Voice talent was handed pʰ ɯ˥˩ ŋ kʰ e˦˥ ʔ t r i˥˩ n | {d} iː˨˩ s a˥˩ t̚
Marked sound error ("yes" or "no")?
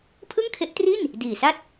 no